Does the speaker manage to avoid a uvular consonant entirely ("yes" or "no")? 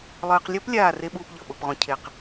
no